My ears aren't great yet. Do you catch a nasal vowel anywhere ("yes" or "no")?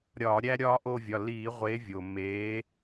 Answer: no